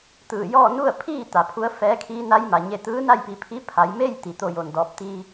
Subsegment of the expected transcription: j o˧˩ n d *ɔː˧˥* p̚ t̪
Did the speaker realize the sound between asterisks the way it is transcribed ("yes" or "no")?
no